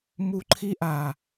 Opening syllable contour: high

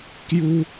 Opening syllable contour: high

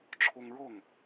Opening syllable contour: high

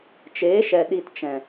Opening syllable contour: rising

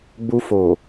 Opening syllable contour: high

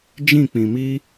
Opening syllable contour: falling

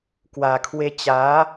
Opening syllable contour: low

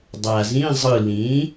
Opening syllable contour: low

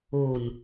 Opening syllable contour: low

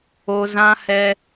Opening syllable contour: high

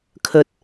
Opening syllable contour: low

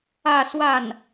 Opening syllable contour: falling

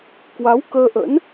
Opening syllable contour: rising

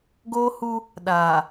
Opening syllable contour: high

